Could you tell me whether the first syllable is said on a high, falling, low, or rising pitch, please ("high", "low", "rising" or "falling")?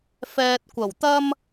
low